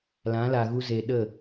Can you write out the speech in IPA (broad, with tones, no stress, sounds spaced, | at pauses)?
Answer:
l ã˨˦ l a˨ ɣ u˦ z eː˨ ɗ ə˦˨